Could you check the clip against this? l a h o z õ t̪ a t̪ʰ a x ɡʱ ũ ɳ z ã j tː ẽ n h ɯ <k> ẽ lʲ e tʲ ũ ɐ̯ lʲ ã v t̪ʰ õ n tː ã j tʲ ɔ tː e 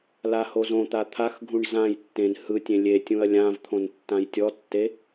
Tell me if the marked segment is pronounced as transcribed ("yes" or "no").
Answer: no